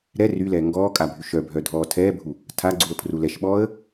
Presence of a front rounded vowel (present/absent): present